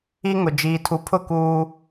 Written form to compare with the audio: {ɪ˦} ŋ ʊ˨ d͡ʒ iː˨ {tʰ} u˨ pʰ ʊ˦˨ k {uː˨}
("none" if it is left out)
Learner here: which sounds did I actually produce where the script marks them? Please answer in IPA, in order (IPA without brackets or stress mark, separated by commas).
i˦, tʰ, uː˦